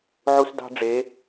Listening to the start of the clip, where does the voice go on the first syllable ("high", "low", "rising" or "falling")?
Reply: high